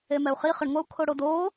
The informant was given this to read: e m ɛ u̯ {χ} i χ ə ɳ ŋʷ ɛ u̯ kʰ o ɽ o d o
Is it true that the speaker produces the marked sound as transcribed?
yes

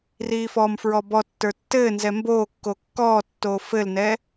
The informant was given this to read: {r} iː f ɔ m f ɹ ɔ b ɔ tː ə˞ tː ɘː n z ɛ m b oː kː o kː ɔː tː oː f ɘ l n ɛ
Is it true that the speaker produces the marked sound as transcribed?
yes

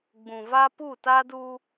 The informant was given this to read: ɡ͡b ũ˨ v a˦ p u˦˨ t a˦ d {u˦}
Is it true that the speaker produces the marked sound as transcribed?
yes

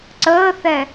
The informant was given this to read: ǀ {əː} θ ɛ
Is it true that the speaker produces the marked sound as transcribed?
yes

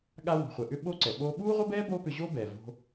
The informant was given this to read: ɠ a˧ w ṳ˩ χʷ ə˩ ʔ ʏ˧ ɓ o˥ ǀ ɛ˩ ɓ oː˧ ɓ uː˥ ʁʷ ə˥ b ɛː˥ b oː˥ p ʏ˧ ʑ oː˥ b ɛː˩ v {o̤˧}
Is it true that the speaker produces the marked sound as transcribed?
yes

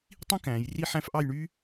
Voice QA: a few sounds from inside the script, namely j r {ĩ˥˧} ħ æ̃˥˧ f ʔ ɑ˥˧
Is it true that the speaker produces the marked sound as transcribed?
no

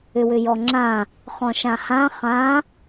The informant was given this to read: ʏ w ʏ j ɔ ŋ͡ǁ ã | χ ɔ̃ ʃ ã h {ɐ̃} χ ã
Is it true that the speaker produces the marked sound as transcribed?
no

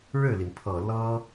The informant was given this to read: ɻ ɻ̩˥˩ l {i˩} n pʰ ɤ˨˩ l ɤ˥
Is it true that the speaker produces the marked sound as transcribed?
yes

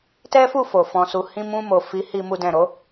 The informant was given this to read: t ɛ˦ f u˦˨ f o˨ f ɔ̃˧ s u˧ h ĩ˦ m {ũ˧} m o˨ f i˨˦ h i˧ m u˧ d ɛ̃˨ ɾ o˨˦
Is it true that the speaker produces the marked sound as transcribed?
yes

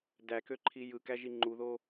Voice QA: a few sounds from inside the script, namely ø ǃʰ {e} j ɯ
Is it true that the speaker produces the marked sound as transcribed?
no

